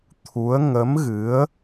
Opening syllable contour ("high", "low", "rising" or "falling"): rising